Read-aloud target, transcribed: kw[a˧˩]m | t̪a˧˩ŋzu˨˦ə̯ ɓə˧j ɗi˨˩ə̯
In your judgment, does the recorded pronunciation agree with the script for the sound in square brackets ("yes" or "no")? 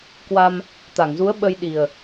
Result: no